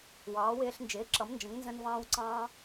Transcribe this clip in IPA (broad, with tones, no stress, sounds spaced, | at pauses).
w ɑː˩˥ w ɪː˧ ɬ n d͡ʒ ɪː˩˥ ǁ ʌ˩˥ m n d͡ʒ ə̃˩˥ ŋ n z ə̃˧ n v ɑ̃ː˧ w ǀ ɑ̃ː˧